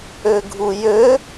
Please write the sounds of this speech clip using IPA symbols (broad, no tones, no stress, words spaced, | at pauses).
øɡʱujø